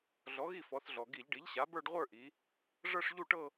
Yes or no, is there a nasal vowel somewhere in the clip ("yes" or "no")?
no